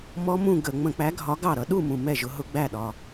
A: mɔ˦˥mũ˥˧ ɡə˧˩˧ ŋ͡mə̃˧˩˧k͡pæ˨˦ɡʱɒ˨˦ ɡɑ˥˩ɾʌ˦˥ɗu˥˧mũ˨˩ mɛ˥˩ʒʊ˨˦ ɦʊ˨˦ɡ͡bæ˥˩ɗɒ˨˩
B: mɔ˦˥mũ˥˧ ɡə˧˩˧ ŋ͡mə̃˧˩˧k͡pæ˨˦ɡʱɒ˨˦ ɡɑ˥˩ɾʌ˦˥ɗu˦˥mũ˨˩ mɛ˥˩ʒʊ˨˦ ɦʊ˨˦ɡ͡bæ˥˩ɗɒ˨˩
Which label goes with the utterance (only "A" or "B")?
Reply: A